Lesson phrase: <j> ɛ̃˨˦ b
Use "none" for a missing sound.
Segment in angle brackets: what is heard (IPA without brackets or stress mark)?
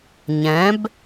ɲ